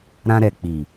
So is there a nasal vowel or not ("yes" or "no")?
yes